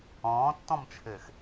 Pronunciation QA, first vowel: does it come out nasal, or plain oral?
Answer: nasal